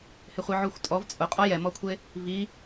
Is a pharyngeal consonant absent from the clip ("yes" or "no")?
no